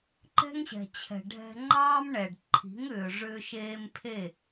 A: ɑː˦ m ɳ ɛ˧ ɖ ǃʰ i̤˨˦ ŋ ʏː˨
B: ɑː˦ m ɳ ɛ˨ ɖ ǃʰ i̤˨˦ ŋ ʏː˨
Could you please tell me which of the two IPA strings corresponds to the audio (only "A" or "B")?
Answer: B